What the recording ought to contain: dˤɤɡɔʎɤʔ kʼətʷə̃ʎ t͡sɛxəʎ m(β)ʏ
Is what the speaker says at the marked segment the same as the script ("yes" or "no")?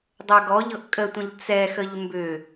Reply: no